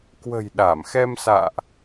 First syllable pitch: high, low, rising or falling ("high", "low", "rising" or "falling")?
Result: low